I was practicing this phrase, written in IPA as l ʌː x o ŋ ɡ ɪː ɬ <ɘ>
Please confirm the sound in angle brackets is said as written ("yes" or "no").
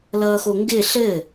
yes